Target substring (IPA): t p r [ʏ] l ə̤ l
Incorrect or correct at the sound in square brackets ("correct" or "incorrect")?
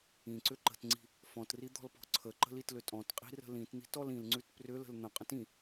correct